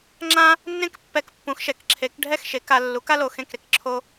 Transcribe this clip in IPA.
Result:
ŋ͡ǁ ã˥ | nː ẽ˥ k pː ɛ˧ k pː ũ˨˥ x ʃ ɛ˨˥ k ǁʰ e˨˥ k ɖʱ ɛ˥˨ x ʃ e˨˥ k a˧ lː u˨˥ k a˥ l o˧ x ẽ˥˨ k ɾ e˧ k ǁʰ o˥

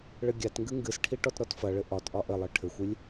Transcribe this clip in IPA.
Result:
ɭ ɘ ɡʲ a t ŋ ɡ ɨ ŋ ɡ ɨ s ʈʰ i ʈ ɔ t ɾ ɔ t f ɐ ɭ ɘ ʔ ɒ t ʔ ɒ ʔ ɘ lˠ ɨ ʈʰ ɘ xʷ ɨ lʲ

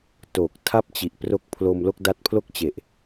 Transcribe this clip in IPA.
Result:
t oː˨˩ k̚ tʰ a˦˥ p̚ t͡ɕ i˨˩ ʔ p r o˦˥ k̚ pʰ l o˧ m l o˥˩ k̚ d a˦˥ t̚ pʰ l o˥˩ k̚ t͡ɕ e˨˩ ʔ

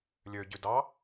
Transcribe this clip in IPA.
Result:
lʲ ø ɟ y d ɑ

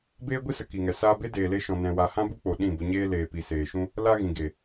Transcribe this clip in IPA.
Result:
b eː˦ ɡʷ i˦ s ə˨ k i˨ ŋ ɛ˨ s aː˧ b e˦ d eː˨ l e˧ ʃ ɔ̃˨ n ɛ̃˧ w a˧ h ã˦ b u˦ k͡p o˨ ɗ ĩ˦˨ b ə˧ ɲ eː˦ l eː˨ p i˨ s eː˨ ʃ ũ˦ | l a˦ ɣ ĩ˨ ɡ e˨

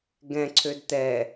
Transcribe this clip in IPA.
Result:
ɡ ɛ̃ ǀʰ ø d t̪ ɛ

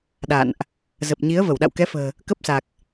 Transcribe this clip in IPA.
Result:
ɗ a̰˧˨ n ʔ | z ə˨˩ p̚ ɲ i˨˦ ə̯ v ə˧˩ w ɗ a̰˧˨ w k ɛ˨˦ f ə̤ː˨˩ | k ə˦˥ p̚ s a˨˩ k̚

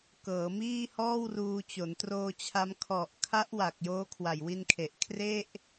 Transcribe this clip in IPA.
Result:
k ɤː˩˦ m iː˥˩ h ɔː˥˩ w r uː˧ t͡ɕ o˩˦ n t r oː˧ t͡ɕʰ a˦˥ m kʰ ɔ˨˩ ʔ kʰ a˦˥ ʔ w a˨˩ k̚ j oː˦˥ kʰ w a˨˩ j w i˧ n kʰ e˨˩ ʔ kʰ r e˥˩ ʔ

